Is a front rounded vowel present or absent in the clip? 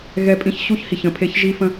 absent